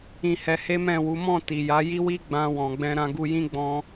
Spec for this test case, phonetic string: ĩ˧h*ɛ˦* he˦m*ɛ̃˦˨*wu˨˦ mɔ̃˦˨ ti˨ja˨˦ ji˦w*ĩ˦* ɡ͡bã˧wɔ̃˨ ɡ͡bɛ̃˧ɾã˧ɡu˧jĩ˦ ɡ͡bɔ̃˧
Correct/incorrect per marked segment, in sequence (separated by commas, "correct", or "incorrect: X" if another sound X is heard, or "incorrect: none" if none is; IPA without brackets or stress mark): incorrect: ɛ˧, correct, incorrect: i˦